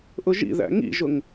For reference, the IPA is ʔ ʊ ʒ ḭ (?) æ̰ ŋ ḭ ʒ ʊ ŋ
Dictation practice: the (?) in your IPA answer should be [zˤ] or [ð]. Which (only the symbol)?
ð